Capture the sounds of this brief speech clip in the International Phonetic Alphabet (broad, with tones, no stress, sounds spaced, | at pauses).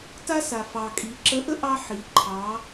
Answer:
t a˥ s a˩ f ɑ˩ kʼ i˩˧ ǁ ə˧˥ ʔ ə˥ ʔ ɑ˥ ħ i˩˧ ǃʰ ɑ˩˧